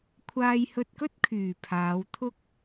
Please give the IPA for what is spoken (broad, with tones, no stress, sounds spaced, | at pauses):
kʷʰ aː˧ j h ɵ˧ t̚ k ɵ˥ t̚ kʰ yː˨˩ pʰ aː˨˧ w t̪ʰ ʊ˥ k̚